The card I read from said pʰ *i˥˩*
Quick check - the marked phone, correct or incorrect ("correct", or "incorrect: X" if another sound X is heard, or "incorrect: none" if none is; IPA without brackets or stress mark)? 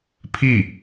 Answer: correct